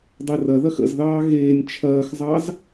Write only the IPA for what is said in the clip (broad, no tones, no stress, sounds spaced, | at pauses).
dˤ e r ɐ ð ɐ x ə̰ z ð ɑː ɣ eː nʲ t͡ʃʰ ɐː x zˤ ɑ z